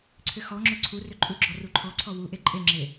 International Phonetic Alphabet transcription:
ǀʰ ʏ x ɔ ŋ͡ǁ ʏ ǀʰ u r ʏ ǃʼ u ɡ͡ǁ ɔ r u ǃʰ ɔ ǀʰ ɔ w u ʔ e ǃʼ e ŋ͡ǁ e

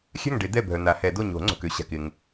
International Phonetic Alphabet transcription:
xʲ a̤˥˨ ŋ ɖ e˨˩˦ d̪ ɛ˥˨ bʱ œ˨ n̪ a˨˩˦ h ɛ˨˩˦ d o˥˨ ɲ o̤˨˩˦ ŋ͡ǀ o̤˨ k ø˧˥ ɕ a̤˨ k ɪ˨ ŋ

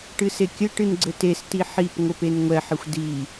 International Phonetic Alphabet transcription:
ʈ ɨ s e kʲ ɘ ʈ ɨ n ɡ͡ǀ ɘ t e s t i ħ i p ŋʷ ɘ p e n ŋʷ ɛ ħ ɘ xʷ d i

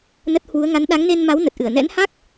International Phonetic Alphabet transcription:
n ə˦˥ t̚ h w u˨˦ ə̯ ŋ a˨˦ n ɗ a˨˦ ŋ n e˧ n m a˨˦ w n ə˨˩ t̚ ʔ ɨ˧˩ ə̯ n ɛ̰˧˥ n h a˦˥ k̚

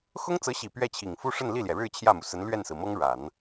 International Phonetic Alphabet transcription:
x ʊ˥ ŋ t͡s ɤ˧˥ ɕ i˨˩ p ɥ ɛ˥˩ t͡ɕʰ i˨˩ ŋ f u˥ ʂ ə˥˧ n l i˥˩ l j ɛ˩ ɻ ɻ̩˥˧ t͡ɕʰ j ä˥˩ m u˩ s ə˧˥ n l ɥ ɛ˥˩ n s ɹ̩˩ m ɤ˥ ŋ ɻ a˨˩˦ n

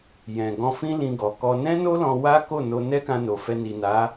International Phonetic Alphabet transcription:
j ɛ̃˨ ɡ ɔ̃˧ f ĩ˦ l ĩ˧ ɡ ɔ˨ k ɔ˧ n ɛ̃˦ n o˦ l ɔ̃˧ w a˦ k o˦˨ n o˧ n ɛ˦ k ã˧ n o˨ f ɛ˧ n i˨ n a˨˦

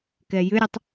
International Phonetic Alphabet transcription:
k ɛ j ʏ ɾʲ ə tˤ

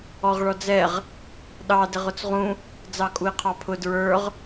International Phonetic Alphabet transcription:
ɔ ʁ ɭ ɔ d͡z ɛ ʁ | ɗ ɑ d ɪ ʁ ʊ t͡s ʁ ũ | d͡z ɑ kʼ u i̯ qʰ ɑ pʰ ʊ d ɹ ə˞ ʁ

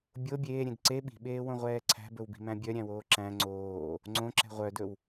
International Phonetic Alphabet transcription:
bʲ o bʲ eː ɾʲ ẽ d ǀ e ɓ i̤ ɓ eː w õ ʁʷ ɛː ǀʰ æ̤ b ɵ w b i̤ m æ̃ bʲ œ ɾʲ æ̃ w oː ǁ æ̃ ŋ͡ǀ oː | ŋ͡ǀ õ ǁ ɛ̤ ʁʷ œ d ɵ w

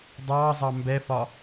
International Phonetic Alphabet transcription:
dˤ ɑː zˤ ɑ m b ɛ f ɒ

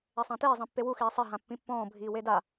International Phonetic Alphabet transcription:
ɛ sˤ ã t eː zˤ ĩ pː e w u x iː sˤ e ɦ ã pː ĩ pː ɔ̃ː bʱ iː w e d a

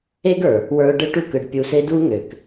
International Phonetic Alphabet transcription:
e˦ ɡ ə˞˨ | w ə˞˧ ʊ̯ ɖ ɯ˦ ʈ u˦ k ɯ˨ ɖ pʲ u˧ s e˦ d u˦ ŋ ø˨ k

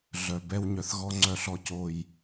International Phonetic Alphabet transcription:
ɮ œ˨ b ɛ˦ w ɲ œ˨ θ ɣ ɔ˦ ŋ͡ǀ œ˨ ɬ ɔ˨ c o˨ j

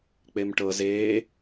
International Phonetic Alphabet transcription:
k͡p e m ʈ ɤ z eː

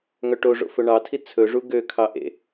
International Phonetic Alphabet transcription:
ŋ œ ʈ o ʐ o̰ f ɵ ɳ ɑ tʰ i t͡sʰ ɵ ʐ u ɡ ø kʰ ɑ ʔ ḛ

